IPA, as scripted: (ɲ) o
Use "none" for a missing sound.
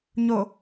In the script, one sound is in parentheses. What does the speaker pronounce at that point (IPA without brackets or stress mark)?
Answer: ɲ